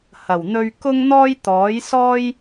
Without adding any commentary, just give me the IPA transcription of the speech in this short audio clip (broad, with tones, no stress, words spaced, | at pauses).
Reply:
hɐ˨˩wn̪ɵ˧ɥkʊ˥ŋn̪ɔː˥j t̪ɔː˨˥jsɔː˥j